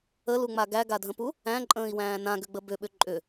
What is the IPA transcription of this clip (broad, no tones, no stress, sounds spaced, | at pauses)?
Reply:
ə l u ŋ͡m a ɡ æ ɡ a dʱ ə̃ p u | æ̃ ǃʼ ə̃ː i̯ w æ̃ː n ã ɡ ʏ ɡ͡b ə b ʏ ɓ ʏ ǃʼ ʏ